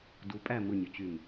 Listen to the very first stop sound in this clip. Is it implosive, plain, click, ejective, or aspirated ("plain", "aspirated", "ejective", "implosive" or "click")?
plain